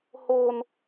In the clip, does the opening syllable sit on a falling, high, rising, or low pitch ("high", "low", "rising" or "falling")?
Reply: high